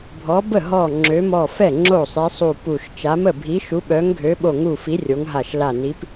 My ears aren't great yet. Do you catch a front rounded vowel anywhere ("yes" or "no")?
yes